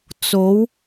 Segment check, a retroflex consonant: absent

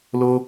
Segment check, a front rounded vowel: absent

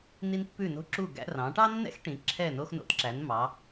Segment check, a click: present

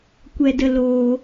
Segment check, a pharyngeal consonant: absent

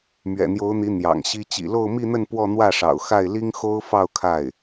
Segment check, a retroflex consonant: present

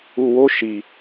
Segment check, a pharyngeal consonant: absent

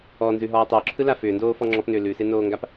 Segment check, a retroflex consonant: absent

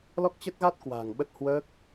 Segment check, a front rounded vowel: absent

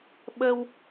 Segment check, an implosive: present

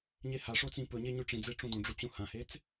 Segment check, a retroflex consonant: present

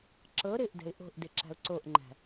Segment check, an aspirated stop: absent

